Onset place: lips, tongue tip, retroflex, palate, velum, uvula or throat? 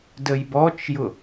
tongue tip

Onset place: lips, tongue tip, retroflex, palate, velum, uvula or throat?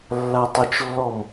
tongue tip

